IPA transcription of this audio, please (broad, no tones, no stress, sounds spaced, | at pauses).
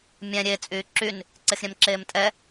mʲ ɛ̃ ɾʲ e t͡sʼ yː ǁ y n | ǀ e x ɾʲ ɛ̃ m ǁ eː m tʼ ɛ